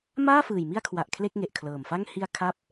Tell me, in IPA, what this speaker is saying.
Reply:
maː˥˩fɯː˨˩j mi˧a̯kʰwa˨˩ʔ kʰle˥˩k̚ŋe˨˩ʔkʰlɤː˨˩mfa˥˩ŋ hi˧a̯ kʰa˦˥p̚

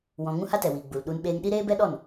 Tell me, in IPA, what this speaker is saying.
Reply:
wɔ̃˧ ŋũ˦ha˦tɛ˨wiː˨ ɡ͡bu˨lɗu˧n ɓeː˧ŋɗi˦ ɾeː˦bɛ˦ ɗɔ˦˨n

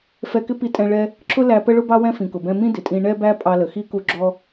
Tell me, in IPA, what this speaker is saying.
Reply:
fɛ˧kɪ˥ pi˧ tʼɛ̃˧ ɭɛ˧ | ǁʰʊ˥ læ˧pə˥ ɭʊ˥bɑ˥ wɛ̃˥fĩ˩kʊ˩bɛ̃˧ mĩ˥ dɪ˩tʼĩ˧ ɳɛ˥bæ˥ pʼɑ˧lə˩xi˥ ku˧ ɡ͡ǁɔ˥

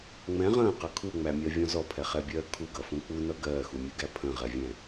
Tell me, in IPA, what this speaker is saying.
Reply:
ŋ͡mɛ̃ ʁə̃ːqʌ kʰuŋ͡mæmʲɜvʲɔ̃ zɔpʰɛχɛbʲɜː kʰuɡʌfũ k͡punʌ ɡɜːxumʲɯɡæ pʰə̃ʁɛvʲɛ̃

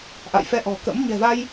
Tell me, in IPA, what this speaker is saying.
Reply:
ʔa̰˧˨jfɛ˧ʔɔ̤˨˩kə̰˧˥m ɲɛ̤˨˩va˧j

